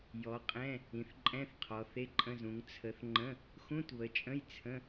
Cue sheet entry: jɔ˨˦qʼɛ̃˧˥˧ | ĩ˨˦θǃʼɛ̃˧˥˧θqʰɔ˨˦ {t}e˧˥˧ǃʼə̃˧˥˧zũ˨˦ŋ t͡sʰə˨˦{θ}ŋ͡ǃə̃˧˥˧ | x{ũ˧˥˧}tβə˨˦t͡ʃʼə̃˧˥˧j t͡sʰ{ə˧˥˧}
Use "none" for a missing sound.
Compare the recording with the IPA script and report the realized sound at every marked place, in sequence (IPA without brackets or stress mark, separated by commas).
θ, θ, ũ˧˥˧, ə̃˧˥˧